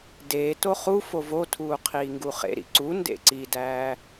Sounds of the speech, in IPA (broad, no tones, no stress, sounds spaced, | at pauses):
d eː t o χ u f o v o tʰ uː qʰ iː ŋ ɡ u χ ḛ ɾ ḭ ǀ u n d ḛ ǀ i d æː